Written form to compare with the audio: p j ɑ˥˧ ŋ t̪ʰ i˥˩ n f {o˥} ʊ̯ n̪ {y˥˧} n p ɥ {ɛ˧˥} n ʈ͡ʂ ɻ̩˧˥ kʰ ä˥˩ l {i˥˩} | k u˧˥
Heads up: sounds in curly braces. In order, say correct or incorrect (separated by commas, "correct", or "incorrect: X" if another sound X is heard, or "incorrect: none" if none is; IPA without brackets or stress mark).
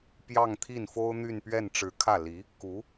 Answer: correct, correct, incorrect: ɛ˥˩, incorrect: i˧˥